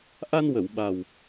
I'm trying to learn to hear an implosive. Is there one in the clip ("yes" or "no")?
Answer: yes